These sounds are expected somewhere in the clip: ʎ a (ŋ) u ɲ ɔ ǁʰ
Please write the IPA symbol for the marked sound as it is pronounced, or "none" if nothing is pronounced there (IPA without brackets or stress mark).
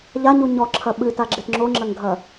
ɲ